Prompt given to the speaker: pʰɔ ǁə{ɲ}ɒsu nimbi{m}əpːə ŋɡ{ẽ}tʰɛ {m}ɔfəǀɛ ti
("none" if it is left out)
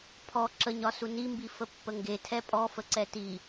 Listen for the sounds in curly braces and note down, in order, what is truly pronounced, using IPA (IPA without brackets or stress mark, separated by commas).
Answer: ɲ, f, e, pʼ